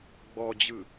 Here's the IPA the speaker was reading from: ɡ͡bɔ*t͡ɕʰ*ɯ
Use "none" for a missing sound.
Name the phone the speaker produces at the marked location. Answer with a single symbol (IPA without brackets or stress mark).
d͡ʑ